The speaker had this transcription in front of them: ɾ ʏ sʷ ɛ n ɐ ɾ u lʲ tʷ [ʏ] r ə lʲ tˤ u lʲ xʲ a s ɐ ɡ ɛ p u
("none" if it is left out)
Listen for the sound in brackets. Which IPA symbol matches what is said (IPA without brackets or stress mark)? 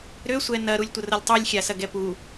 ə